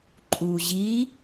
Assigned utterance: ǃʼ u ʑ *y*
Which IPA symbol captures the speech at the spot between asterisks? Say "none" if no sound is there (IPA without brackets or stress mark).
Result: i